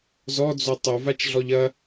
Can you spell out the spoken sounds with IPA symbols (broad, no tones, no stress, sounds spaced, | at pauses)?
z ɔ d͡z o tˤ o v a t͡ʃ ɮ ɔ ʎ ɐ